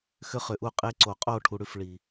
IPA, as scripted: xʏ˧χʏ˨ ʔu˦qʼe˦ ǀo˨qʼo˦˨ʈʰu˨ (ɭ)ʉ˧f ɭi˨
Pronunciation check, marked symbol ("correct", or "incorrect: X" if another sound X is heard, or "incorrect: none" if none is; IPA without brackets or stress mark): incorrect: ɽ